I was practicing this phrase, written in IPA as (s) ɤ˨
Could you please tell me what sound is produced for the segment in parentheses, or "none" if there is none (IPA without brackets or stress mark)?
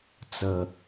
t͡s